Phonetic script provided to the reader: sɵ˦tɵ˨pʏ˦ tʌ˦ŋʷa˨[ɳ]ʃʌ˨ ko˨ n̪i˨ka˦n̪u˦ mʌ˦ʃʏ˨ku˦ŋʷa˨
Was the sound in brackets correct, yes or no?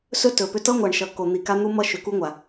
yes